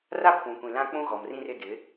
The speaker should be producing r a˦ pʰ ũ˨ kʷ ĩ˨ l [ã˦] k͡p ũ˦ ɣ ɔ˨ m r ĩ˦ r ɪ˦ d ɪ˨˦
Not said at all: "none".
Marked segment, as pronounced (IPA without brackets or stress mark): ã˦